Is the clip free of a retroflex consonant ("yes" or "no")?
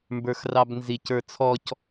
yes